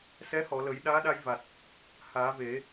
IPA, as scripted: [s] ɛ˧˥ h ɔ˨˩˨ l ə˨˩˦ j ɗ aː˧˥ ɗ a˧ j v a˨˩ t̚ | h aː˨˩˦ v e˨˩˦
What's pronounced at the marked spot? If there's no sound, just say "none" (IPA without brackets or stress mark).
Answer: s